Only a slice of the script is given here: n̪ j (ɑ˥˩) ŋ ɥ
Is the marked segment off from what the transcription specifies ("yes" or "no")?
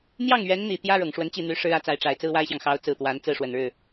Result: no